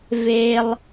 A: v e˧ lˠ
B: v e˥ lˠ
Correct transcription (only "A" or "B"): B